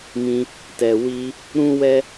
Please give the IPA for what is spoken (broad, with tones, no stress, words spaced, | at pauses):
mĩ˧ | tɛ˨ wi˧ | ɾũ˦wɛ˦